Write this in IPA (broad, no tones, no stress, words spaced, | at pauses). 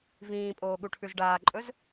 vĩːpʼoːɠuʈʰʉz ɖaːǃʼɵz